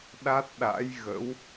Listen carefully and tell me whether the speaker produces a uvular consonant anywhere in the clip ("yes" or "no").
no